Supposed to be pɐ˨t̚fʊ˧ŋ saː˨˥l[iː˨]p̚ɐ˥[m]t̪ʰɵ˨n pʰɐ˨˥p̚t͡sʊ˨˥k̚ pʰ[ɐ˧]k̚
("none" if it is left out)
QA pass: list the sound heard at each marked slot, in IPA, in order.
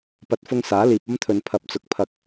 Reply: iː˨, m, ɐ˧

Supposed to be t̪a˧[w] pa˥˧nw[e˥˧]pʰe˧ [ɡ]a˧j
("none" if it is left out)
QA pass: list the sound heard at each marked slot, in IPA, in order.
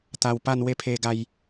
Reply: w, e˥˧, ɡ

